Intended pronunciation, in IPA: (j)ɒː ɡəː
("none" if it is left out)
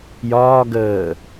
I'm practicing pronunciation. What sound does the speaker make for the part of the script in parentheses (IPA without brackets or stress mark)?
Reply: j